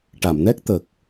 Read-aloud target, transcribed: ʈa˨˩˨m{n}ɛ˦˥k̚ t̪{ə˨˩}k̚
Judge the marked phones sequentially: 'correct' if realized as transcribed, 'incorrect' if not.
correct, correct

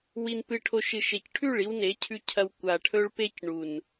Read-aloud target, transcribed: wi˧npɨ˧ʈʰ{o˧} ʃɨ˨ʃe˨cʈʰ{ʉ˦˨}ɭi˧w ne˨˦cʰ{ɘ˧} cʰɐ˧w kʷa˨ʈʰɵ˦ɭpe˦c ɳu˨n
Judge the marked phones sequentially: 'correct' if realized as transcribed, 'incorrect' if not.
correct, correct, incorrect: ʉ˧

